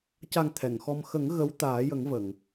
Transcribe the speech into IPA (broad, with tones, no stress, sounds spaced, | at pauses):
c a˨˩ ŋ t̪ʰ ɛ˨˩˨ ŋ x ɔ˧ m x ə˨˩˦ ŋ ɣ ə˧˥ w t̪ aː˨˩˦ j ə˨˩˦ ŋ v ə˨˩˨ ŋ